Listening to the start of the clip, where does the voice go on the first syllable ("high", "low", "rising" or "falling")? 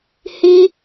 high